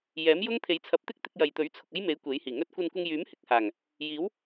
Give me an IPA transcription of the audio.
jɛː˨˥mjʊ˥ŋ t̪ʰe˨˧jt͡sʰɐ˨˥p̚t̪ɪ˥k̚t̪ɪ˧k̚ jɐ˨jt̪ɵ˨˥ɥ t͡sʰʊ˨k̚ɐ˥jme˨˥j kʷe˨˥jhiː˨˩ŋɵ˥t̚ kʷɐ˧nkʷɪ˧ŋjyː˨˥m hɪ˨k̚haː˨˩ŋ | jiː˨˥w

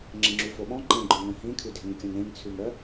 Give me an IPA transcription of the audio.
ŋ͡ǁẽŋ͡ǁʉfoɓɔ̃ ǃẽɡ͡ǃœ̃ŋœ̃ ɦĩkʰʉdʱẽŋkʲœ̃ŋ ɾẽŋt͡sʰʉŋɾœ

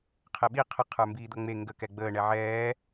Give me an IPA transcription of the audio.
qʰɛɓi qʰə qʰə˞mbiːd̪ʌŋ͡me ŋɡə kɛɡ͡bəː ɳɛʕɛː

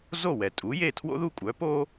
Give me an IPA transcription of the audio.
zo˥˩wɛ˩tʼu˩˥je˥˩ tʰwo̰˥ðu˥˩kʷʼœ˩˥po˥

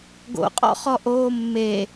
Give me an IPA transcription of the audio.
ɡo̰qʼɔ̰χɔ ʔoːmːe

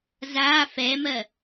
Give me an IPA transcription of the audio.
zaː fɛːmɜ

